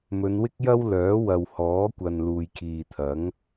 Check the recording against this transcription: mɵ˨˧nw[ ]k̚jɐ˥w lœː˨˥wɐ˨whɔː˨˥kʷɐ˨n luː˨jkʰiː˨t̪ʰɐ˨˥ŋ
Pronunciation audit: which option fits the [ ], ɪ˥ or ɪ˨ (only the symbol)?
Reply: ɪ˥